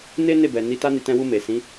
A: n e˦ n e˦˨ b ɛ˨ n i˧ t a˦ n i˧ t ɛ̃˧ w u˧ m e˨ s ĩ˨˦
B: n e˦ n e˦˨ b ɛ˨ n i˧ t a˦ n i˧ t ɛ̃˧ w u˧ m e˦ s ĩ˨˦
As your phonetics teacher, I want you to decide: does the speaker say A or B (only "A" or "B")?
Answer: A